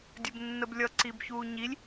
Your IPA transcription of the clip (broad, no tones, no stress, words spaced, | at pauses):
dʲɘbnːəblʲʌ ǀibçuːɲilʲ